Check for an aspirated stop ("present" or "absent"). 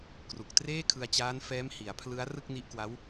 present